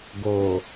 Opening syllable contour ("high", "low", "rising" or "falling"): low